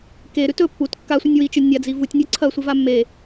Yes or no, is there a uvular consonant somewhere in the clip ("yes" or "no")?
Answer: no